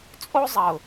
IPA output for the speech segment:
t͡sʼ o˦ zˤ ɐ˨ ʊ̯

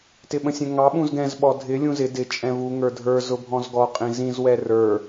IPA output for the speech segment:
t ɪ ɓ ə̃ sʲ ɛ̃ ŋ ɑ ɓ ũ z ɡ ɛ̃ z ɓ ɔ dʱ ɪ lʲ ũ z ɪ d ɪ t͡ʃʼ ɛ̃ v u ŋ ə˞ dʱ ə˞ z ʊ bʱ ɔ̃ z ɡ ɔ qʼ ĩ z ĩ z w ɛ r ə˞

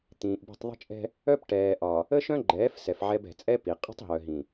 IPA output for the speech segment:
t̪ ĩː˨ ʔ b i̤˦˨ tˤ ðˤ ə̤˦ t͡ʃʼ ɛ̤˦ | œ˦ p ʈ ɛː˨ ʔ ɒ˨ | ə˦ ʃ œ̃˦ ɡ͡ǃ ɛː˨˦ f s ɛ˨ f ʕ ɛ˦ b ɛ̤˨ t͡sʼ ɛ˦ p i˨ qʼ ə̤˦ tˤ ɦ œ˨ ɦ ĩ˨

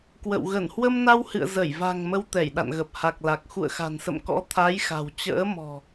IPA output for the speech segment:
k w ə̰˧˨ w ɣ ə˧˩ n h w ə˧ m n a˧ w h ɨ̰˧˨ ə̯ z ə˧˩ j v a̤˨˩ ŋ m ə˧ w t̪ ɛ˧˩ j ɗ a̰˧˨ n ɣ ə˨˩ p̚ h a˨˩ k̚ l a˨˩ k̚ x ṵ˧˨ ə̯ x a̤˨˩ n s ə̰˧˨ m k ɔ̰˧˥ t̪ʰ a˨˦ j x a̤˨˩ w t͡ɕ ə̰ː˧˥ m ɔ̤˨˩

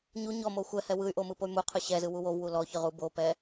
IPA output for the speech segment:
ɲ u ɲ ɔ m o xʷ ɛ h ɛ w ɯ y̯ ʔ o m ɯ p o y̯ m u qʰ ɯ ɕ ɛ z ɯ w u w o v w u l ɔ ç ɯ ʁ u b o p ɛ

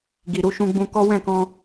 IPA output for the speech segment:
ɡ i˨ ɾ u˨˦ ʃ ũ˧ ɡ͡b ũ˧ k ɔ˦ w ɛ̃˦˨ k ɔ̃˧

